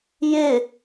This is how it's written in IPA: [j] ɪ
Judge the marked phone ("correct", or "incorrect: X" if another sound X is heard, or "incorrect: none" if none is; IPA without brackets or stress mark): correct